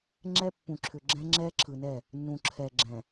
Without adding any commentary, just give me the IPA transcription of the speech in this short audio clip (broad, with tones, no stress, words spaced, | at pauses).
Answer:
ŋ͡ǁɛ˦pːũ˨ǁʰʏ˨ ɡ͡ǁɛ̃˦ŋ͡ǁɛ˦ǁʰɯ˨nɛ˦˨ | nːũ˨ǁʰɛ˨ɡ͡ǁɛ̃˨